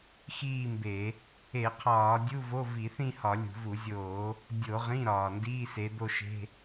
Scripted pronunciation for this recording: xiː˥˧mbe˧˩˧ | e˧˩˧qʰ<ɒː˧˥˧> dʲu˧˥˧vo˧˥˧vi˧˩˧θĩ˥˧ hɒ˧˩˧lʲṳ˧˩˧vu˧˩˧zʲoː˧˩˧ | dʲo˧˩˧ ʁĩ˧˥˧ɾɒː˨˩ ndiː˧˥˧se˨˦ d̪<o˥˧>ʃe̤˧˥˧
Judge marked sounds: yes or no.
no, yes

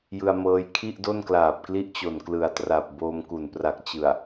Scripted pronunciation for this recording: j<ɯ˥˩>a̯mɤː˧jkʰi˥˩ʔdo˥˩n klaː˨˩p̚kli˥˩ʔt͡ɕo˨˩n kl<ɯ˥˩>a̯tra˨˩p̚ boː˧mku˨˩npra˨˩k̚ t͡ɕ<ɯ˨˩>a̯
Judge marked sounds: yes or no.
no, no, yes

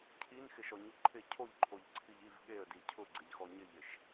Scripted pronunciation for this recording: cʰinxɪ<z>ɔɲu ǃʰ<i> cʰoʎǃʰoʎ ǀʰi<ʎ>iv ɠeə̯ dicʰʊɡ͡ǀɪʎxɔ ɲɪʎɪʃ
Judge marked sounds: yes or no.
no, no, yes

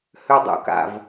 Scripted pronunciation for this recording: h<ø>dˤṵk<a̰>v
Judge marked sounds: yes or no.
yes, yes

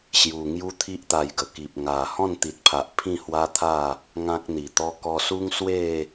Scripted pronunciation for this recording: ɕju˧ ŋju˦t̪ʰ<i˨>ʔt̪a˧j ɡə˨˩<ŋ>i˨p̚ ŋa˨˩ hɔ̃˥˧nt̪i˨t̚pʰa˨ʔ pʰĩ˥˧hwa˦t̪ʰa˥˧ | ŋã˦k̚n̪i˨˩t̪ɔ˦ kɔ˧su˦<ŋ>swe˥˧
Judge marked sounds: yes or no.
no, no, yes

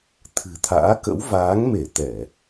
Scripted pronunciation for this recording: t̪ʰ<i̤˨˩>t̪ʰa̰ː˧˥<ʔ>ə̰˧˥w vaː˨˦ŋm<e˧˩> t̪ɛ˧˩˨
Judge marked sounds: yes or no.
no, no, yes

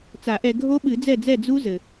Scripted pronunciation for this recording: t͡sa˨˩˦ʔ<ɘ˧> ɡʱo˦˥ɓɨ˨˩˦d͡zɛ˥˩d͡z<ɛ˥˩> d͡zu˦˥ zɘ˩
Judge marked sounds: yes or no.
no, yes

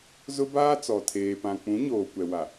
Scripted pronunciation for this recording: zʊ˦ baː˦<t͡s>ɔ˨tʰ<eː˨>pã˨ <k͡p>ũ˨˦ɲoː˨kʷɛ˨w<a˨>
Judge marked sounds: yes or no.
yes, yes, yes, yes

